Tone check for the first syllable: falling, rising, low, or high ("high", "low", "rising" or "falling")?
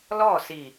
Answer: falling